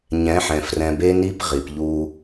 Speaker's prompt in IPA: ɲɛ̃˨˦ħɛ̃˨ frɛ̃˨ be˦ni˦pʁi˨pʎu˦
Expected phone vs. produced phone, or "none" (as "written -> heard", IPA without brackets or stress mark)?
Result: none